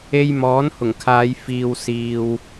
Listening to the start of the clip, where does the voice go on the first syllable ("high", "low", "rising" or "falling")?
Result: high